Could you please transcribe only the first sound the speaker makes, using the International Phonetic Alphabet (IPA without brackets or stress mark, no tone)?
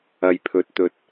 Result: ɐ